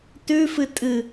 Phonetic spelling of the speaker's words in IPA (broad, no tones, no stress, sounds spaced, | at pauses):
t ʉ f ɨ tʼ ɨ